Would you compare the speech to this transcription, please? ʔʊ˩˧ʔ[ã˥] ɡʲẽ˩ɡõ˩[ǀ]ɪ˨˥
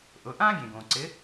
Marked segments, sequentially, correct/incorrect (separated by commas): correct, correct